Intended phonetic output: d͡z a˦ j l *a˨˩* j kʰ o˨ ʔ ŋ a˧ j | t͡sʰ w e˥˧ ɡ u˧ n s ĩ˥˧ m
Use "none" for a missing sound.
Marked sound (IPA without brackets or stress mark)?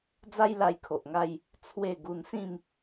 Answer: a˧